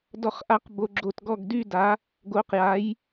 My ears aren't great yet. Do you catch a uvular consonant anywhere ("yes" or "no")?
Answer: yes